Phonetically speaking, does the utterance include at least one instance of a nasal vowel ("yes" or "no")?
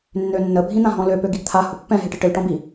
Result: yes